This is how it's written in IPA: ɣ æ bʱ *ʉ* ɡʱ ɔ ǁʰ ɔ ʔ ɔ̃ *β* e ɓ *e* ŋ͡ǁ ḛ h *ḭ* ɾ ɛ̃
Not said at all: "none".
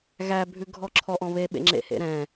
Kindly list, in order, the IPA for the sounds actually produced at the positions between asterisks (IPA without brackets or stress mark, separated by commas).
ʉ, β, ḛ, ḛ